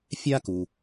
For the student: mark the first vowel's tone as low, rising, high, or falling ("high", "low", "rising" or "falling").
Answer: high